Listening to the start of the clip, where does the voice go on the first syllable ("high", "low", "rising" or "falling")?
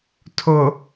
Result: low